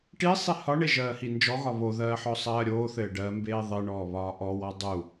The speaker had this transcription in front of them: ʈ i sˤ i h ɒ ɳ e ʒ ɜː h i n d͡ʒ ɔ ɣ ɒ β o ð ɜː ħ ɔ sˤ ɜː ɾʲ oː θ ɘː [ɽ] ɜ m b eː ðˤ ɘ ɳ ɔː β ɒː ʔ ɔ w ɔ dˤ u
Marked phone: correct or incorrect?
incorrect